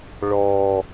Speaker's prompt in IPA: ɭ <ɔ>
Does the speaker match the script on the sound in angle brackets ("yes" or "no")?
yes